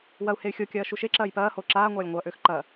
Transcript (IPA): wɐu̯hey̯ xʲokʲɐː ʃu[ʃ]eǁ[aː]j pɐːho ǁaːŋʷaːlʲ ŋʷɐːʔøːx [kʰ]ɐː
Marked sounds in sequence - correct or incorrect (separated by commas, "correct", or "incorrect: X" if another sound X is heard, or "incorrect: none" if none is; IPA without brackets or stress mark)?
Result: correct, incorrect: ɐː, incorrect: ǃ